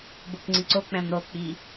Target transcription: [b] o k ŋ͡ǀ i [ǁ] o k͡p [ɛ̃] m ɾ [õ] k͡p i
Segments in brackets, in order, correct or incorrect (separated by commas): correct, incorrect, correct, incorrect